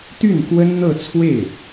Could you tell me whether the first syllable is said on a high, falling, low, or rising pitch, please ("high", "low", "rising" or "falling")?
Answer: falling